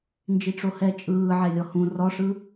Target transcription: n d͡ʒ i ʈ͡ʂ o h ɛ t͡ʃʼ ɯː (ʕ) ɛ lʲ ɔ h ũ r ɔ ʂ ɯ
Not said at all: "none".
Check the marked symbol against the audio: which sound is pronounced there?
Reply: ʕ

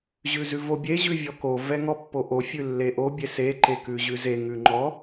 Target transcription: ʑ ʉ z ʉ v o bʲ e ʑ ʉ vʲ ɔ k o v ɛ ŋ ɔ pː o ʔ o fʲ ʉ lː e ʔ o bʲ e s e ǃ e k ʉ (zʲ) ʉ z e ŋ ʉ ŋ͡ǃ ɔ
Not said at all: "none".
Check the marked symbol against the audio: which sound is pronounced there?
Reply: ʑ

